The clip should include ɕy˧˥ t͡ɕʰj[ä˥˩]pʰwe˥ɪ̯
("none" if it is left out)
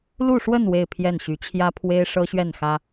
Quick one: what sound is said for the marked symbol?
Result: ä˥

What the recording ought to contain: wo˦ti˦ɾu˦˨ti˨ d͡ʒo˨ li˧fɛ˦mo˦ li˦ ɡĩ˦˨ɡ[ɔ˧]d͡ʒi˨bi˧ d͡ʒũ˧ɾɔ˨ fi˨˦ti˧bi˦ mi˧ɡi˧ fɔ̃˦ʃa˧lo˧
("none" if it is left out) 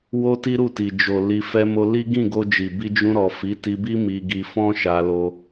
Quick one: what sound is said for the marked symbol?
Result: o˧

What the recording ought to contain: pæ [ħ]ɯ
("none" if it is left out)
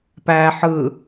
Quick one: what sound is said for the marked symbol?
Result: ħ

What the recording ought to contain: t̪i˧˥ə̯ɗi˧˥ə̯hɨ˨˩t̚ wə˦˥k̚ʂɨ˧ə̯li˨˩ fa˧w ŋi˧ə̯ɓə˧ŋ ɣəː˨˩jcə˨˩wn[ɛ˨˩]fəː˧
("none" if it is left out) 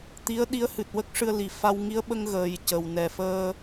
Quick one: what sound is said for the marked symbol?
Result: ɛ˨˩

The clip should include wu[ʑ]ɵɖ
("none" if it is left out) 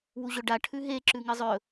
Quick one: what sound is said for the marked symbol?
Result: ʑ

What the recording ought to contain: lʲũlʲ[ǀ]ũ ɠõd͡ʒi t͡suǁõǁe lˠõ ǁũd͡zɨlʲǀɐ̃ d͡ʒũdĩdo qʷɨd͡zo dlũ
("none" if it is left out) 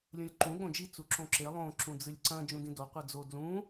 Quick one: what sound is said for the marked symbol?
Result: ǃ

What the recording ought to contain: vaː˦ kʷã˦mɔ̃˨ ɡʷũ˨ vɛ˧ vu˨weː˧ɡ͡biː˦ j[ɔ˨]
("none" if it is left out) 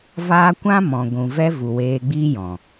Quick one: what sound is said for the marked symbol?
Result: ɔ̃˨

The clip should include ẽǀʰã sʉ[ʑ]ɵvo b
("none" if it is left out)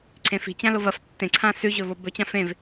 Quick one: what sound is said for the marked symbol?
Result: ʑ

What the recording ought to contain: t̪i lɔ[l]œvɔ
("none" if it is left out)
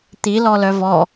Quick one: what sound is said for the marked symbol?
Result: l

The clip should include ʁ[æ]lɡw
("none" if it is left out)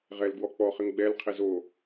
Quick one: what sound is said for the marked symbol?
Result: ɛ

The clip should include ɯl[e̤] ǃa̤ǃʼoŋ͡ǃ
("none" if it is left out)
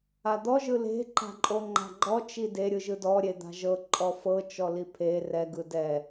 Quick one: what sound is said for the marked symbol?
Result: e̤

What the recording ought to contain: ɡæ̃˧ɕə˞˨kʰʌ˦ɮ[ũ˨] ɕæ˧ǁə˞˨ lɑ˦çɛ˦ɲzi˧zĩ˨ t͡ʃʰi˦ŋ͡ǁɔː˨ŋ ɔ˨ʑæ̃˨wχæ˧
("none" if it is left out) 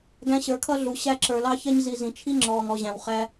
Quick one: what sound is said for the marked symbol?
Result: u˨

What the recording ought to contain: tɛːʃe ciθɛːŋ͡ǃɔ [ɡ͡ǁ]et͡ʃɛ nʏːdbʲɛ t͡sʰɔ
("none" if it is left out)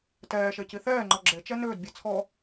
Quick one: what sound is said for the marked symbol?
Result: ɡ͡ǁ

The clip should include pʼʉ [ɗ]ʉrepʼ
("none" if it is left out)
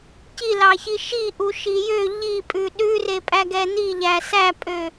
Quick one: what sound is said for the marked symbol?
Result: ɗ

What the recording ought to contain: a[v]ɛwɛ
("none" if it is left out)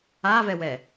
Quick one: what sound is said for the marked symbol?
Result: v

